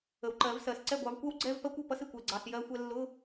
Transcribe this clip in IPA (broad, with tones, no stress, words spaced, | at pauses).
ə˨wǃɜ˨˩˦vsɜ˨s ǀɛ˥˩ɡʷɑ˨˦vkʷɜ˥w ɡ͡ǀɛ˧˥˧v pɜ˥kʷɔ˥˩pʌ˥sɪ˥˩kʷ ɛ˥˩ɡ͡ǀɑ˧˥˧sjɜ˥xʷɛ˥ lːʊ˧˥˧